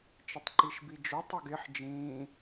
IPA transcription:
t͡ʃ ə tˤ ǃ i ʃ b i d͡ʒ ʊ tˤ ʌ ɡ ɪ ħ d͡ʒ ĩː

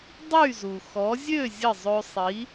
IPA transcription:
dˤ y˥˩ z u˩ x ɔ˩˥ zʲ ø˥˩ zʲ ə˥˩ zˤ ø˧ sˤ i˩˥

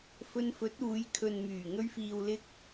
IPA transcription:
f ɵ˧ n f ɵ˨˥ t̚ uː˨˧ j kʰ ɵ˨ n m yː˨˩ ŋ ɵ˧ ɥ f iː˨ w l ɪ˧ k̚

